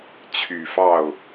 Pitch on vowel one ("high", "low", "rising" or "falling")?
low